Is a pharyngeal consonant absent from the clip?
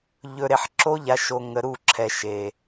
no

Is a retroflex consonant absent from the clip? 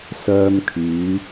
yes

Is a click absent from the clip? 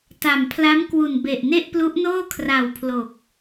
yes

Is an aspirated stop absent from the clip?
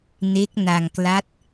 yes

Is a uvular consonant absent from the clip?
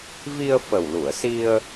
yes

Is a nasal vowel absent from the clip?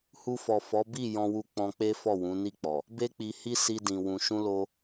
no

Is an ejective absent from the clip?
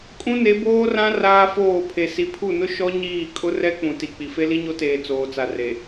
no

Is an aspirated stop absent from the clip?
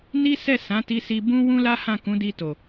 yes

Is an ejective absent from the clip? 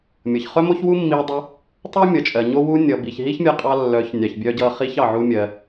no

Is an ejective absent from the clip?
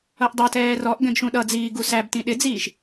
yes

